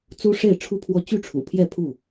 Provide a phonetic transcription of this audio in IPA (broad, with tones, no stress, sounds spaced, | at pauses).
t͡s u˦ ʂ e˥˨ ɪ̯ ʈ͡ʂʰ u˦ pʰ w ɔ˦ t͡ɕ y˥˨ ʈ͡ʂʰ ṵ˨˩ pʰ j ɛ˥˨ pʰ u˥˨